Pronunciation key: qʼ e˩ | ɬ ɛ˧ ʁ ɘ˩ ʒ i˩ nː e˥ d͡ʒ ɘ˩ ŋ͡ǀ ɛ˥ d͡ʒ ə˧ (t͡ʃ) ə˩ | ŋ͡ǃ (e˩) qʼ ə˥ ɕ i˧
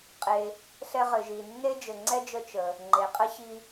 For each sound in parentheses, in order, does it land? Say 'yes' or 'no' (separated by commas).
yes, yes